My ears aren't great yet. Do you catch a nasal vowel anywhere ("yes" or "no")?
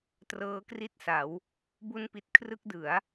no